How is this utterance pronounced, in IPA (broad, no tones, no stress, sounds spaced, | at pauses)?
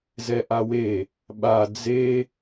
z ɛ ʔ a w e | ɓ a d͡z e